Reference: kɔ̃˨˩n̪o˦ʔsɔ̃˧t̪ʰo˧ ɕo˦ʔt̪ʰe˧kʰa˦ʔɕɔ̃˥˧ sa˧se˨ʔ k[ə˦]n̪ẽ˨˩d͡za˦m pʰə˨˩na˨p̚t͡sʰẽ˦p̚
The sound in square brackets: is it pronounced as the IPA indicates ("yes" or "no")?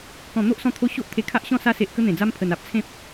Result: yes